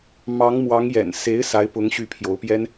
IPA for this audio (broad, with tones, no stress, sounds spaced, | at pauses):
m ɑ˧˥ ŋ m w ɑ˧˥ ŋ j ɛ̰˨˩ n s e˧˥ ɪ̯ s a˧˥ ɪ̯ p ʊ˧˥ ŋ ɕ y˧˥ pʰ j o˧˥ ʊ̯ p j ɛ˥ n